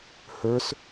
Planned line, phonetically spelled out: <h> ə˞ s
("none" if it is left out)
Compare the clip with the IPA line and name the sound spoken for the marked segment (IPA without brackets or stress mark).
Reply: h